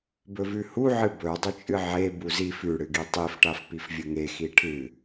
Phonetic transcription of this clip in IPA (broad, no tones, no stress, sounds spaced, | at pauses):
b ɵ v ʉ h u ʕ ɨ b ɵ dˤ ɵ t͡ʃʼ ɨ ʕ e b u z i f ʉ ɽ ɨ ɡ i tˤ i f ʈ a f p i f vʲ ɵ ŋ e x i ʈʰ ɨ